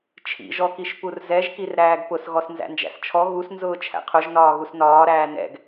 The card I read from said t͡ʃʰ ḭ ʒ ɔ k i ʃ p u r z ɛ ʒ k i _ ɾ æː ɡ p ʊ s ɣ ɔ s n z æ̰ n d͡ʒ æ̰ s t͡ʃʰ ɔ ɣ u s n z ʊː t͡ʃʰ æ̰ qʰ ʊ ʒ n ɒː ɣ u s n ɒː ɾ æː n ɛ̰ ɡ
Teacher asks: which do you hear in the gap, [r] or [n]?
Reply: r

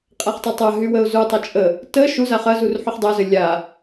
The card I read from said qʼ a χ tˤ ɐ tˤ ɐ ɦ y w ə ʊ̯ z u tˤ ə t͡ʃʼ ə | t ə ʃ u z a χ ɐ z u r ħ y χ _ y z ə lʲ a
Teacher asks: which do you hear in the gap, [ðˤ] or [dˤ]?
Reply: dˤ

